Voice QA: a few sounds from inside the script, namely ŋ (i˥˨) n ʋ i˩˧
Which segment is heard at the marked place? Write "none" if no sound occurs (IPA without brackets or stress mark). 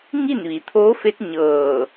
i˥˨